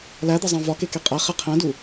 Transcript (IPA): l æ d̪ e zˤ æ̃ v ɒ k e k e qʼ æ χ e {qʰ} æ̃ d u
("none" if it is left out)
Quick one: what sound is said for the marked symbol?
qʰ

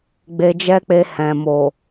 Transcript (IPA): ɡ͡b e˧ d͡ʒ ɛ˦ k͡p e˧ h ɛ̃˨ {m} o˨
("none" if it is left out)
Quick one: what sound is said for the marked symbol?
m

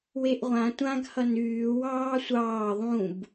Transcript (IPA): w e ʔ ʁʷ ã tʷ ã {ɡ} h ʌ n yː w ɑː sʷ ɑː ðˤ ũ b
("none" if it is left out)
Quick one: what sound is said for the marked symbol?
ɡ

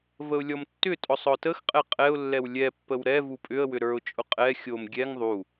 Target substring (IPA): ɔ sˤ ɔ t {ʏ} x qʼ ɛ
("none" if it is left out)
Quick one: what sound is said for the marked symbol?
ə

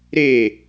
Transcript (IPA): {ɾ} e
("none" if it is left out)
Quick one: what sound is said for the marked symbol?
ɾ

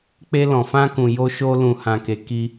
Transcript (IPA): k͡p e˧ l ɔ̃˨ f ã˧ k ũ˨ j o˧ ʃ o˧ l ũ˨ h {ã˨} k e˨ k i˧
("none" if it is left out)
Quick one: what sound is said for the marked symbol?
ã˨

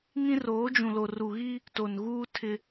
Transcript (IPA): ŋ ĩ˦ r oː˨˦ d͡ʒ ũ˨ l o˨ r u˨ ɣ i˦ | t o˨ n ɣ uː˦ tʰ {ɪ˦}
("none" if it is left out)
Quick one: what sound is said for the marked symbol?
ɪ˦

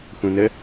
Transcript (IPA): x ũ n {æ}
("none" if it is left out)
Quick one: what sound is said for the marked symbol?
ə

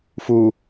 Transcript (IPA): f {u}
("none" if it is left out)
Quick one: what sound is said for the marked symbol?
u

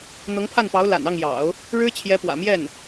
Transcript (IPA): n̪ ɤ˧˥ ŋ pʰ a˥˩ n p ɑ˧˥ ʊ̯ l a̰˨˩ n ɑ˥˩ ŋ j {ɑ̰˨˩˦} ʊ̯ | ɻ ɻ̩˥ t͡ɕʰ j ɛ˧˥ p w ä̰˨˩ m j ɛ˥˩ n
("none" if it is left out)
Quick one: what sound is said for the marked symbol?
ɑ̰˨˩˦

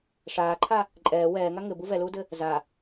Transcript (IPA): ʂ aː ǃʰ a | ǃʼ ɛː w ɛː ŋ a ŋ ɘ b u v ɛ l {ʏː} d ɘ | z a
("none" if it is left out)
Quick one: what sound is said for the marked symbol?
uː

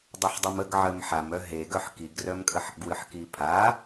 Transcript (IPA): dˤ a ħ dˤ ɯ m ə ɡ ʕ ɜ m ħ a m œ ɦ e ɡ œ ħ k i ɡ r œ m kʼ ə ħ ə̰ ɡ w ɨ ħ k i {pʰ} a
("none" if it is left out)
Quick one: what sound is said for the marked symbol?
pʰ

